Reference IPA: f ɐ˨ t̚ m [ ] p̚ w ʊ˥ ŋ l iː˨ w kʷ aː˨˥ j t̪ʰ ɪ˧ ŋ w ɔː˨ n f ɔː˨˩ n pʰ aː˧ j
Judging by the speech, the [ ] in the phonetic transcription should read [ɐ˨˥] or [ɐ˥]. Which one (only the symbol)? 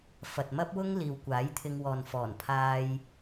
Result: ɐ˥